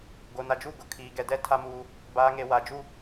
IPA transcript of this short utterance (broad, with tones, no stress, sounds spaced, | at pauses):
ɡ o˨ n a˨ d͡ʒ u˦˨ ɡ ʊ˨ kʰ iː˨ ɡ ɛ˨ d ɛ˦ tʰ a˦ m uː˦ | b aː˨ ŋ e˨ w a˨ d͡ʒ u˦